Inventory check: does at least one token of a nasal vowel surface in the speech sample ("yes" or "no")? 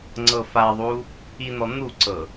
no